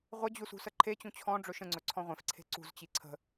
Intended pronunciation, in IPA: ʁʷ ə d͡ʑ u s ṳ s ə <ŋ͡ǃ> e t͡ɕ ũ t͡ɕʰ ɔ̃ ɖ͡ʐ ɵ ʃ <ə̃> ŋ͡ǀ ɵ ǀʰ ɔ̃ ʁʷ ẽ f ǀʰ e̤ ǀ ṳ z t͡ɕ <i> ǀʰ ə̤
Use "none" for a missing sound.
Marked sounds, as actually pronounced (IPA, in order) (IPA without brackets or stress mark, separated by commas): ǃʰ, ə̃, i